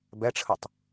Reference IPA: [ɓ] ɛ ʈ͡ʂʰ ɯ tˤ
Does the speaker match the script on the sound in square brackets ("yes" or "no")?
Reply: no